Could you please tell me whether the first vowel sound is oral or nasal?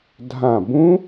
nasal